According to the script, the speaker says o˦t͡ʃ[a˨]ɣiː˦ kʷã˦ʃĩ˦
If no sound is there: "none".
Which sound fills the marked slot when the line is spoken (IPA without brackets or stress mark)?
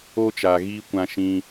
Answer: a˨